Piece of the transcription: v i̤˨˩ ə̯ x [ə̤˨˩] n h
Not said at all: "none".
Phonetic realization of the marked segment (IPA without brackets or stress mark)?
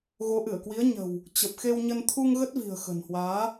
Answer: ə̤˨˩